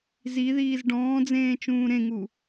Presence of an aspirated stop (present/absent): absent